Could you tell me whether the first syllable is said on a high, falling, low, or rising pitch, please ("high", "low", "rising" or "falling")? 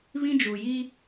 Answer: high